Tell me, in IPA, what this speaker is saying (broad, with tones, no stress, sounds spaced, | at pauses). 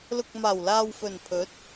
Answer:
l ʊ˨ k̚ m aː˨˩ w l aː˨ w f ɵ˨˩ n pʰ ɵ˨˥ t̚